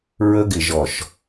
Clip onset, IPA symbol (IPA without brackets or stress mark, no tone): ɹ